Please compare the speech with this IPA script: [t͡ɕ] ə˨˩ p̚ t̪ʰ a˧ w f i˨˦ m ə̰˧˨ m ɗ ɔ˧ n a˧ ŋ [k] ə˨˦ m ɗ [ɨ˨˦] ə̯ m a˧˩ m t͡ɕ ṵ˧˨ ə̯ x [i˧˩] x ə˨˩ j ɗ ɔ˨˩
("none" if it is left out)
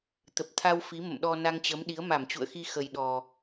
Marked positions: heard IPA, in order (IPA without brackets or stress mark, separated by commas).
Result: t̪, t͡ɕ, i˨˦, i˧